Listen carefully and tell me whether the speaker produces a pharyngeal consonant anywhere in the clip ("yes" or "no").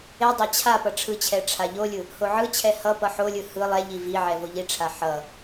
yes